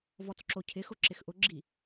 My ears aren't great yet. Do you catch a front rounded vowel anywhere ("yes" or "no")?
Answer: no